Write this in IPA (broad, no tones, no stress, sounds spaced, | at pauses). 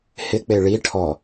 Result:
h ɪ k͡p e ɭ i ʈʰ ɔ